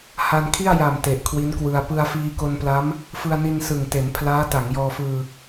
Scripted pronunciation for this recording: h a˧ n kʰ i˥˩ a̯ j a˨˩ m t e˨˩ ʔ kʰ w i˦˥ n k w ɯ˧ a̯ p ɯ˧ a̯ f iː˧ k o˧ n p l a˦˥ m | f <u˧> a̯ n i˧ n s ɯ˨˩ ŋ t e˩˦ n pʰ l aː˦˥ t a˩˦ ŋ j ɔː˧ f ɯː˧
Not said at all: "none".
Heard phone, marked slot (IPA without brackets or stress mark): ɯ˧